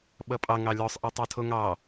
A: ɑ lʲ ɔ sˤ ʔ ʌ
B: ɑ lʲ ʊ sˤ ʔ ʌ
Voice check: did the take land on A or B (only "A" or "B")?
A